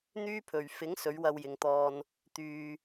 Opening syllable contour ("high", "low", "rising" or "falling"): high